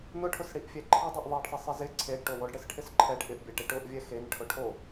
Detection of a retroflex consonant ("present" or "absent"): present